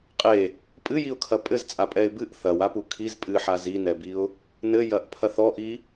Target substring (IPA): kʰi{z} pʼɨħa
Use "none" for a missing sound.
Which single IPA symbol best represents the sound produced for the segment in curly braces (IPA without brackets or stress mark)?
z